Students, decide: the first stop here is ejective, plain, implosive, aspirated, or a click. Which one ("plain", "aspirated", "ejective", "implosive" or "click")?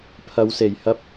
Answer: aspirated